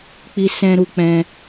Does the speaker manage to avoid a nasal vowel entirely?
no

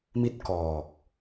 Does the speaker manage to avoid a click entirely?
yes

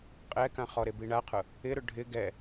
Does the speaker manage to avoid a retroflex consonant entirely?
no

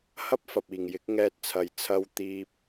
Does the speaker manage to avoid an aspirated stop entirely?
no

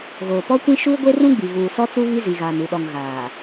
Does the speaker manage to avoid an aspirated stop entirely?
yes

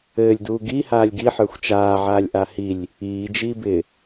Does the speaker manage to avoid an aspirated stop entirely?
yes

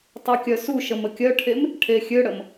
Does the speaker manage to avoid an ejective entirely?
yes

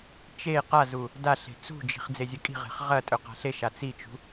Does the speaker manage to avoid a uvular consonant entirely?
no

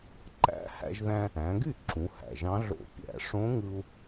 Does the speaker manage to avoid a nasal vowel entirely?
no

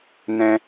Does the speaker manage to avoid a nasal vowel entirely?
no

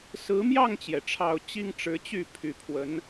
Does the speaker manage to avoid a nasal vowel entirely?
yes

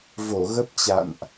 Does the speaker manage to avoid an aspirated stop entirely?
yes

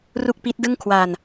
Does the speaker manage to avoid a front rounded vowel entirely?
yes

